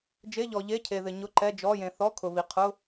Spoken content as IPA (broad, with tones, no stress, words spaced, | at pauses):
d͡ʒe˧˥˧ʎɔ˨ ʎe˧˥˧cʰe˨ðɪ˨ ɲʊ˧˥˧ǃɛ˧˥˧d͡ʒɔ˧˥˧ jẽ˨θɔ˧˥˧ kʰʊ˨βi˨ qʰʊ˧˥˧